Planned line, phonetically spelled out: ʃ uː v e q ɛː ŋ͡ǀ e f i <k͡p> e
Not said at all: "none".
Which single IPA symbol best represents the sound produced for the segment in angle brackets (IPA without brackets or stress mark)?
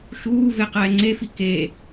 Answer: k